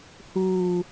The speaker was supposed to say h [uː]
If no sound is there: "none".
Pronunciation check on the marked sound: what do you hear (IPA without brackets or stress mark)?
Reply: uː